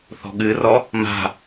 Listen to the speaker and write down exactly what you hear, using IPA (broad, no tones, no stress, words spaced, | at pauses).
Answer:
θɔ̤ɠɨrɔ | ma̤